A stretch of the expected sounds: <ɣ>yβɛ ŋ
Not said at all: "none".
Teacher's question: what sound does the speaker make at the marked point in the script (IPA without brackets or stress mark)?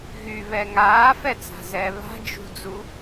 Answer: ɣ